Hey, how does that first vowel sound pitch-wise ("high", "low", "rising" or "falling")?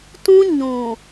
high